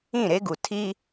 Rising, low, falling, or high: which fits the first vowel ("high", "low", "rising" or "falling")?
falling